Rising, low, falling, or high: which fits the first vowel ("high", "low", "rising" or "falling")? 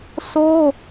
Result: high